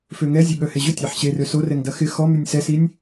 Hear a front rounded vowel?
yes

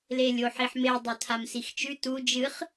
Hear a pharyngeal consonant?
yes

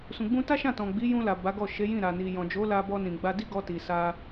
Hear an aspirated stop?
no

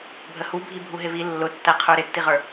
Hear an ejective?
no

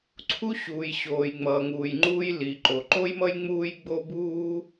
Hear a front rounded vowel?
no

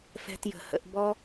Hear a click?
no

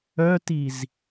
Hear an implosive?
no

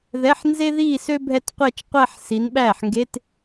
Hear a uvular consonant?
yes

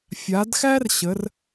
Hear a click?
no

